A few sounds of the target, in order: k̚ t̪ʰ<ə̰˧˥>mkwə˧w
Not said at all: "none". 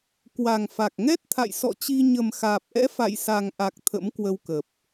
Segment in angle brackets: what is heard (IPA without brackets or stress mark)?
ə̰˧˥